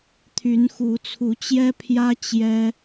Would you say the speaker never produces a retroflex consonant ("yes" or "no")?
yes